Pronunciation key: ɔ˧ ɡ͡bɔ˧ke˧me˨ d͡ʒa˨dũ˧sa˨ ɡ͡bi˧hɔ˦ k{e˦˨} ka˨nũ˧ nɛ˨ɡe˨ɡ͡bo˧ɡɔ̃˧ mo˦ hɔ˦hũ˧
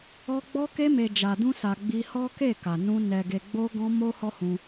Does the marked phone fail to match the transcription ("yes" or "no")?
no